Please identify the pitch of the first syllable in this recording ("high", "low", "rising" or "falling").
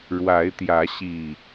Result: rising